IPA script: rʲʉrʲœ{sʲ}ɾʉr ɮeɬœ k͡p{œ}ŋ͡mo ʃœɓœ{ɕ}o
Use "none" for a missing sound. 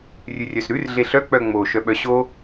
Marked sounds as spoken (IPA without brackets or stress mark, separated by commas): s, œ, ɕ